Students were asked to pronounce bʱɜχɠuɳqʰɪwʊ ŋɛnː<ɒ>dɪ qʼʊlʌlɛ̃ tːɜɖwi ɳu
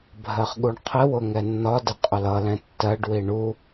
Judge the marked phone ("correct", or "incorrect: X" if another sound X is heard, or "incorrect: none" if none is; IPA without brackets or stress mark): correct